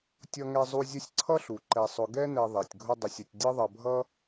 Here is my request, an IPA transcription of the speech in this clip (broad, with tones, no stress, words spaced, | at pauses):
tʲʌ˦ŋɛ˦zˤu˦ zʲʊ˦sʲǀʰʌ˥ɬu˩ǃɛ˨ sˤʊ˨ɡɛ˥nɛ˨ ðˤɛ˩tʲɡʱʊ˦dˤə˨sʲ ə˨tʲdʲʌ˥ðˤʌ˨bʱʌ˥